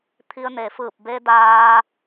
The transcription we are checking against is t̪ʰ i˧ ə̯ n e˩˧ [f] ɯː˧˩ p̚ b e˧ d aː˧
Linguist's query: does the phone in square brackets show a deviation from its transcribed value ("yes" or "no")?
no